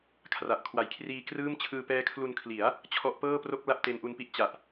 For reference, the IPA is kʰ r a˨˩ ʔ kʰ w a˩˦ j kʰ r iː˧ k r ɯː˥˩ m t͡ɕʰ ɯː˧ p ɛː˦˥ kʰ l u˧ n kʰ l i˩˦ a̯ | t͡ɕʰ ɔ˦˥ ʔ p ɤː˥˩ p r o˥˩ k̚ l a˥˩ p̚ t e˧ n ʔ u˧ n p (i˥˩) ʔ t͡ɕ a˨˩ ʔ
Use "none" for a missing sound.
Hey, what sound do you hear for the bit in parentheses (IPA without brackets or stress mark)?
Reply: i˥˩